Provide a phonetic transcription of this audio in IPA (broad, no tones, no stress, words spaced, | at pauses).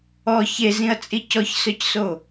ɔ çezĩɐ̯t͡sʼi cɔçsœcso